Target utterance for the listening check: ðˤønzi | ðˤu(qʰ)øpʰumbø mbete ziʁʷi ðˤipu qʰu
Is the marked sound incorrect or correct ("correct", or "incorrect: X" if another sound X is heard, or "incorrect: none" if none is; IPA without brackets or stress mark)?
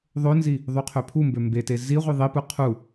correct